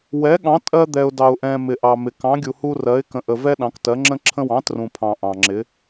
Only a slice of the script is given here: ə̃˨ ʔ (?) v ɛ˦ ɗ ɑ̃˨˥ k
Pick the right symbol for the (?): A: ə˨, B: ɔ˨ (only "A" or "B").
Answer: A